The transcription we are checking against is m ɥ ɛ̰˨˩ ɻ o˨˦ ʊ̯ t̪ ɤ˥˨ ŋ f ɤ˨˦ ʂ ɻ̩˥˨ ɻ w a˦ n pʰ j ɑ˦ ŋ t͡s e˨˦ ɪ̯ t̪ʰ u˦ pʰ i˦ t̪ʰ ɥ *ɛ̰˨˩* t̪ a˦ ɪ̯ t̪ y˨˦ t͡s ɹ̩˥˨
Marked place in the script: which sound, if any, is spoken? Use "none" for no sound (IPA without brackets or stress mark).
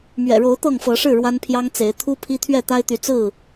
ɛ˥˨